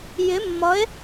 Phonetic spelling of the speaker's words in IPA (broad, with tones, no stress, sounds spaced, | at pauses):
j ɪ˧˥ mː ʌ˧˥ e̯